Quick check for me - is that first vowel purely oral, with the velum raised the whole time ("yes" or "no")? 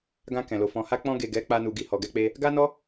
no